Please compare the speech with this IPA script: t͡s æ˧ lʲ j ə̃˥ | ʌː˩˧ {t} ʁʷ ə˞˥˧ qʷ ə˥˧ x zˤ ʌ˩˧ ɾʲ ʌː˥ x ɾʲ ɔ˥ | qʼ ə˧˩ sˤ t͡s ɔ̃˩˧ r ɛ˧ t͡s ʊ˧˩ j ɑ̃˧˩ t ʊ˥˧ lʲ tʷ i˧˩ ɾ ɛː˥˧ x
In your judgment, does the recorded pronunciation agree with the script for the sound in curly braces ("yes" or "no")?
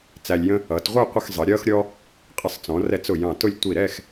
yes